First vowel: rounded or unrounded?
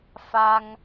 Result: unrounded